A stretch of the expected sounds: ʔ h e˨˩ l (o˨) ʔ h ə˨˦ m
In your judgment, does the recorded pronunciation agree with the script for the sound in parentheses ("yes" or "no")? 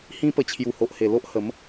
no